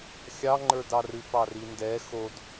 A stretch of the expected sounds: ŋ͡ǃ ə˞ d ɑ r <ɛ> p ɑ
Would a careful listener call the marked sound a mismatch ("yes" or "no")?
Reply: yes